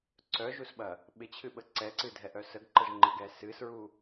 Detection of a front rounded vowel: present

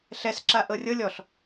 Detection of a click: present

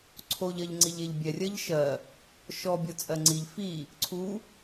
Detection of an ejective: present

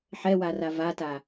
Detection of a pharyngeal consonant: present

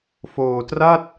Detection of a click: absent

